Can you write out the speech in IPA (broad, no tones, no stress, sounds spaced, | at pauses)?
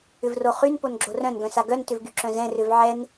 ʏ v r o χ y n p o n ɡ͡ǁ o r œ̃ n ɡ œ̃ s a ɡ œ n t ʏ v ɡ y ǁ œ̃ z ɛ̃ r ʏ v ʕ ɛ n